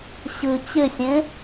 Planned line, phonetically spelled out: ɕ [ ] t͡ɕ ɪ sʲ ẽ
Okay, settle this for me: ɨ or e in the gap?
ɨ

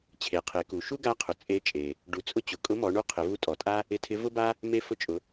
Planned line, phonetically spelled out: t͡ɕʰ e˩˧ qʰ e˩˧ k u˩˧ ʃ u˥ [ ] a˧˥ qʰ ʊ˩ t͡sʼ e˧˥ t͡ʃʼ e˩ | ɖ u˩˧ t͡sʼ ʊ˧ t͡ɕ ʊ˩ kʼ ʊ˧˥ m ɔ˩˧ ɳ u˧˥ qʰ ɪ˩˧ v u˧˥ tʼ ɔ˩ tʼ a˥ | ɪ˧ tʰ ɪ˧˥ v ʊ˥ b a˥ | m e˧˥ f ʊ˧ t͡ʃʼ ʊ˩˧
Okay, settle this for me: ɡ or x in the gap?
ɡ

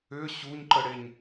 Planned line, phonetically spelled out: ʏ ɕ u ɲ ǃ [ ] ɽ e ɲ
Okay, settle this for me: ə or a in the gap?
ə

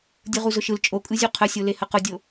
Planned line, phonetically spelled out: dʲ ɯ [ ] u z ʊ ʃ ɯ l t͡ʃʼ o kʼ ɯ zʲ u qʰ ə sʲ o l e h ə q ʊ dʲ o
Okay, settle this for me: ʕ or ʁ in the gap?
ʁ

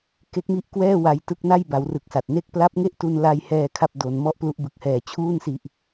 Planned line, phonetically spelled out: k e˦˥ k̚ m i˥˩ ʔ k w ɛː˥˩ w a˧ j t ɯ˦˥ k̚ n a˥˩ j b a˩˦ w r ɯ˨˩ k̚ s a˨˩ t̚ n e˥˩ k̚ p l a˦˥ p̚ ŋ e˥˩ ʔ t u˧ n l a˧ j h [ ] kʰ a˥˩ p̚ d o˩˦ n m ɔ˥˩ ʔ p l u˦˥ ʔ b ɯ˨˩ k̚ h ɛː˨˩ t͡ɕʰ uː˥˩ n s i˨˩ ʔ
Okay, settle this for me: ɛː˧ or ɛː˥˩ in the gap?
ɛː˧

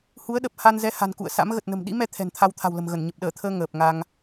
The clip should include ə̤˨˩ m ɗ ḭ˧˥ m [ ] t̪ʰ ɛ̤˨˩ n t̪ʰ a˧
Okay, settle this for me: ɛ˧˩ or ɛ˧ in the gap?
ɛ˧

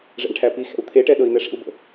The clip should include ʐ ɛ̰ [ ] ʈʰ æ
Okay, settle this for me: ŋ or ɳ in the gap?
ɳ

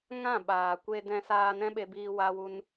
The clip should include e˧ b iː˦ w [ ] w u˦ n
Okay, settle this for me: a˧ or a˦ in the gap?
a˦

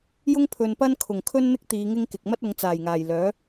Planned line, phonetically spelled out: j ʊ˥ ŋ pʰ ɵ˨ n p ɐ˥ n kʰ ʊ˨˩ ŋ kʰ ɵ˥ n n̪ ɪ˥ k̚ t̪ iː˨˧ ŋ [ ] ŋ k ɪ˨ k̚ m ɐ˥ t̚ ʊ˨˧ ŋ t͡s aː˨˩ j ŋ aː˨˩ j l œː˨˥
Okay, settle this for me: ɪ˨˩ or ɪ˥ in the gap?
ɪ˥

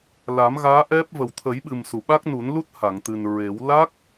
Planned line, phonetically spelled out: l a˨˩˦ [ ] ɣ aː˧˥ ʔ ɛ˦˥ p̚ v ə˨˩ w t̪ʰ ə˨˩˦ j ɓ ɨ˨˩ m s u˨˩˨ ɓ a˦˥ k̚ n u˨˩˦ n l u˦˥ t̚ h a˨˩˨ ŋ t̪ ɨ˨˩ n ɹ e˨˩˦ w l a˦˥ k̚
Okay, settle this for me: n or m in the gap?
m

